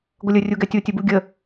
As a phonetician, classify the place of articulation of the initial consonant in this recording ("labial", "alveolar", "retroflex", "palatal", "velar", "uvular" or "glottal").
velar